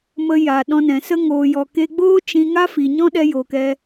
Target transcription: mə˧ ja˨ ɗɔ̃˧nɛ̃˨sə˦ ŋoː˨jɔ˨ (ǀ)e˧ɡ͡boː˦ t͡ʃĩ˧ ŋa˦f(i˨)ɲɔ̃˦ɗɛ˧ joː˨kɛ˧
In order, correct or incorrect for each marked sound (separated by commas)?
incorrect, correct